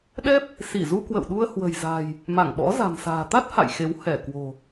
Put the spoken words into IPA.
ɗ ɛ˦˥ p̚ | s i˧˩ z u˧ k w ə̰˧˨ w ɗ u˧ ə̯ h w ə̤˨˩ j z a̤˨˩ j | m a˧˩ ŋ ɓ ɔ̰˧˥ z a̤˨˩ m s a̤ː˨˩ t̪ a˦˥ t̚ h a̰˧˨ j x e˨˦ w h ɛ˧˩ k w o̤˨˩

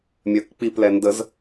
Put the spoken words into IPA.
mʲ œ k k͡p i p l ɛ n d ə z

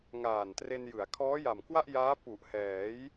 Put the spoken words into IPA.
ŋ aː˨˩ n t r e˧ n j ɯ˩˦ a̯ kʰ ɔː˦˥ j a˨˩ m k w a˥˩ ʔ j aː˦˥ p u˨˩ ʔ h ɛː˩˦ j

